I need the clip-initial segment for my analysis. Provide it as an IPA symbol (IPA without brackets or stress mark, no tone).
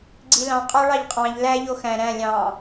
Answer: ɡ͡ǀ